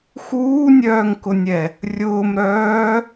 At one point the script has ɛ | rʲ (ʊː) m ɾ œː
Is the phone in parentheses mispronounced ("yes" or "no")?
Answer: no